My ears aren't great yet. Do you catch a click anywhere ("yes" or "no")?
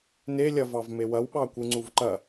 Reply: yes